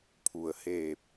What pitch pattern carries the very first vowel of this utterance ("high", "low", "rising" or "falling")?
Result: low